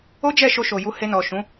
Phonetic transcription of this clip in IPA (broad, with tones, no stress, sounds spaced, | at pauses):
o˦ d͡ʒ ɛ˦˨ ʃ o˧ ʃ o˨ j u˧ h e˧ n ɔ˨ ʃ ũ˨˦